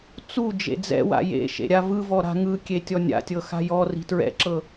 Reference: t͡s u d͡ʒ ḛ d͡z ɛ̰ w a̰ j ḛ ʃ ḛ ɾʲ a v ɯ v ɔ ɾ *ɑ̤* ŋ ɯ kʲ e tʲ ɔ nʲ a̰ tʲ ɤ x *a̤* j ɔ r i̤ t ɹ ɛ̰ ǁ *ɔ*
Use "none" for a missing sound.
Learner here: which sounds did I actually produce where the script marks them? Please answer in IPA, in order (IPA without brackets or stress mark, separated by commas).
a̤, a̤, ɤ